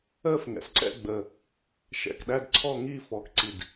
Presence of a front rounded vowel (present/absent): absent